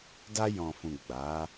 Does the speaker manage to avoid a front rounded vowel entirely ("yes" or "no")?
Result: yes